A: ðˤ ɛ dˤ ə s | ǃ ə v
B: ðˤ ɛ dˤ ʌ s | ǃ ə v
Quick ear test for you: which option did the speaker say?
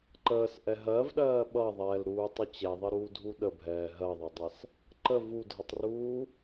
B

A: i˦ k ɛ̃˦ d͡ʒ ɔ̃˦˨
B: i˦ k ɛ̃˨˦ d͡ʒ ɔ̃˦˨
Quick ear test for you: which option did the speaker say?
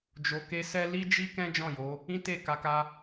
A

